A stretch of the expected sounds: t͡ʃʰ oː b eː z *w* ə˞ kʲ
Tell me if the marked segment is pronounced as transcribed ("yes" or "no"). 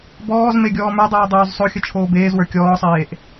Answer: yes